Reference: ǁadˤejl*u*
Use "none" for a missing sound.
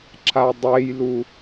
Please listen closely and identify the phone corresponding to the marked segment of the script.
u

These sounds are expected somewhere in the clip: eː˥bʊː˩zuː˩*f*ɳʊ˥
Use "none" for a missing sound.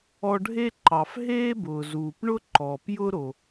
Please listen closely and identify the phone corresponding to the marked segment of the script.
p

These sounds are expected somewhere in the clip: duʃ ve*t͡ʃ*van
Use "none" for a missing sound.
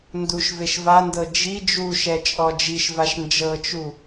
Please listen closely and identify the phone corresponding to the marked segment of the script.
ʃ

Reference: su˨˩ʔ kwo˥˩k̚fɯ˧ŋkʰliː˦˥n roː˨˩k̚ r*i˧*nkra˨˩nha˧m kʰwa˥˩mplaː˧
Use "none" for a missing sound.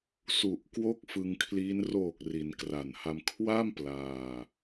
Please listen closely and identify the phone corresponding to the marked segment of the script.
i˩˦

